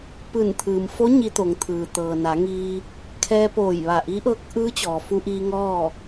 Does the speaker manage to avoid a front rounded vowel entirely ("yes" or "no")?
yes